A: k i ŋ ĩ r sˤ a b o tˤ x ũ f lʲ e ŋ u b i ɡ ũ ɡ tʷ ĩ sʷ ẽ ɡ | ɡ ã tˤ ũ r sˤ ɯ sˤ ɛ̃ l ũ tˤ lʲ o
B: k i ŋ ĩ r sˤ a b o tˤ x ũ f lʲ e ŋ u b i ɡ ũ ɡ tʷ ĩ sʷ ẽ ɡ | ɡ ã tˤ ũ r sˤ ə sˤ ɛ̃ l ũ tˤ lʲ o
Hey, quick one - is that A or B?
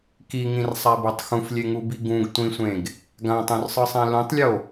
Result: A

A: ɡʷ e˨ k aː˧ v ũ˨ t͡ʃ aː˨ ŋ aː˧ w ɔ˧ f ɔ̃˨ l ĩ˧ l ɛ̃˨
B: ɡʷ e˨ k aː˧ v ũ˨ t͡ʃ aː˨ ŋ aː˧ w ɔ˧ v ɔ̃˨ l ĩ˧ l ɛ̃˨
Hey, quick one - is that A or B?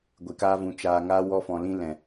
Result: A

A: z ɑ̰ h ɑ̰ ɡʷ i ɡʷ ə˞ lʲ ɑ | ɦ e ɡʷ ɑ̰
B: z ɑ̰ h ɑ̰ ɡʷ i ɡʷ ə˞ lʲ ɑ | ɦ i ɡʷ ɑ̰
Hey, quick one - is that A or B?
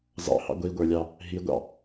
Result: B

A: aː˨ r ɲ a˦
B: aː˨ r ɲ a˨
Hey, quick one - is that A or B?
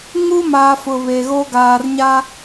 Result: A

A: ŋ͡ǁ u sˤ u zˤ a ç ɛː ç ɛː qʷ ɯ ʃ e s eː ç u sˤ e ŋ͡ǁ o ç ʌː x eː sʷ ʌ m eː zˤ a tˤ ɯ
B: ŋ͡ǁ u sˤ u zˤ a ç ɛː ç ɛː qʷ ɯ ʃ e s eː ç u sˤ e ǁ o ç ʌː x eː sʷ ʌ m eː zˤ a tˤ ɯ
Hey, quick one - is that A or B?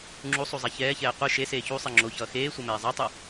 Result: A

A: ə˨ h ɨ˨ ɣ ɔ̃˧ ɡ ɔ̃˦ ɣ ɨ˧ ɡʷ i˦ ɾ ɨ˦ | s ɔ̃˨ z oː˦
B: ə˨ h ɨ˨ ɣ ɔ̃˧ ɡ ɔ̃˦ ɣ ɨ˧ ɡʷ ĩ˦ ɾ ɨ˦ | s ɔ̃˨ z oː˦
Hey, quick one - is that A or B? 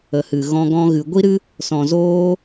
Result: A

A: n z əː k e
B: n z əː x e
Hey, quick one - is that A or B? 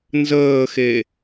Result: B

